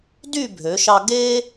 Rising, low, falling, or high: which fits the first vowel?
falling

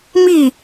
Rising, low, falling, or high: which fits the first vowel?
falling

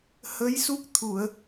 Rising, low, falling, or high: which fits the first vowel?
rising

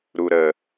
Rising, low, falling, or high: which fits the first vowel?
low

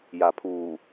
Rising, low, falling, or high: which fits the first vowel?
low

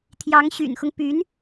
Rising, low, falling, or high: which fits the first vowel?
rising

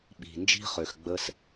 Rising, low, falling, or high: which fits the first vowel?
low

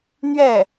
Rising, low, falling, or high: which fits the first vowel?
falling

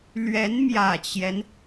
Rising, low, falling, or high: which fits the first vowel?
rising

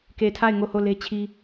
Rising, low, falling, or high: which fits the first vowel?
low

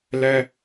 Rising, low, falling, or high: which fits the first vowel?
high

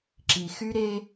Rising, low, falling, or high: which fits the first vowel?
low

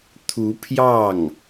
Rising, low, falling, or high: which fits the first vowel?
rising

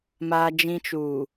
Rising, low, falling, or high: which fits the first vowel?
high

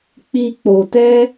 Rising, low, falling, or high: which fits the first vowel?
high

